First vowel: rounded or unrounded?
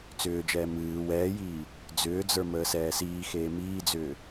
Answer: rounded